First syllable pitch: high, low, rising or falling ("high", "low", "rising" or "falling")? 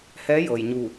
rising